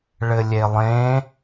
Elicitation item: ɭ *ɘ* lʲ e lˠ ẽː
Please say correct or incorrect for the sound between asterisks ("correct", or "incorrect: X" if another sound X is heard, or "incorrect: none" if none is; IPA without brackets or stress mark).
correct